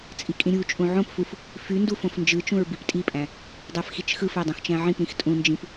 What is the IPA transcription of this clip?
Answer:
t͡sʼ i kʼ ĩ ɾʲ u t͡ʃʼ ũ ʕ õ p f u f | f y n d u f õ f n d͡ʒ ɯ t͡ʃ ũ ɹ b i p tʼ i pʼ æ̃ | dˤ æ f x i t͡ʃ x ɯ f æ dˤ õ x t͡ʃ æ̃ ʕ ĩ p ɾ ĩ x tʼ ũ n d͡ʒ ĩ p

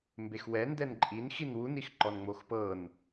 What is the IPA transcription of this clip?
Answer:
m b e x w ɛ n d ɛ n ǃʼ i n x i n w u n i x ǃ ɔ n ŋ͡m o x p ɤ n

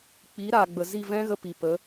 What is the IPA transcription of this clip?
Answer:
k͡p i˨˦ ɾ a˨ ɡ͡b ə˨ z i˦˨ v ɛ̃˦ ɣ ə˧ p i˨ p ə˨˦

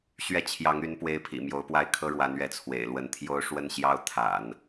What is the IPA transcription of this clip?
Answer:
ɕ ɥ ɛ˥˩ t͡ɕʰ j ɑ˧˥ ŋ y˧˥ n p w e˧˥ ɪ̯ pʰ ḭ˨˩ m j o˧˥ ʊ̯ p w a˥˩ ɪ̯ kʰ ɤ˥ ɻ w a˧˥ n ɥ ɛ˧˥ t͡sʰ w ḛ˨˩ ɪ̯ l w ə˧˥ n t̪ʰ j o˥ ʊ̯ ʂ w ə˥˩ n ɕ j ɑ˥ ʊ̯ t̪ʰ a̰˨˩˦ n

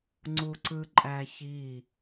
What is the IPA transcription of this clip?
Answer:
ŋ͡ǀ u ǀ ɯ ǃʼ æ ç i

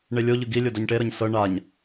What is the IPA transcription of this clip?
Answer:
ɳ e lʲ o ʎ ɯ ɡ i lʲ o d ɔ ɲ ʈ e ɾ ɤ ɲ s ɤ ɳ a ɲ

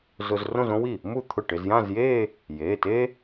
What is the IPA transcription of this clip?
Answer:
z ʊ˧ z r õ˥˧ z õ˥ w i˥˩ | m u˥˩ t̪ʰ ʊ˥˩ ʈ ɪ˧ z j ã˥˧ z j eː˥˧ | j eː˩˧˩ t eː˥

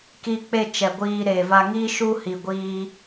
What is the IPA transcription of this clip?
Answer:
k i˧ k͡p e˦˨ t͡ʃ ɛ˨ ɡʷ iː˧ ɾ e˨ v a˧ ŋ iː˦ ʃ u˦ h i˨ ɡʷ iː˧

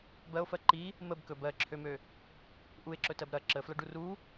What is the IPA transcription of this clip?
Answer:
b ɜ o̯ f ɜ ǃ i | m ə b k ɵ b ɜ ǁʰ ø m ø | ʔ u e̯ ǁ ɵ t ɜ b ɾ ɐ ǁ ə f l ɐ ɖ u r u

